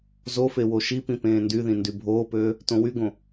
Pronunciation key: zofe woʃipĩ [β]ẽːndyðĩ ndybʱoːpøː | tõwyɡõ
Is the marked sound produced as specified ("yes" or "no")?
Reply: no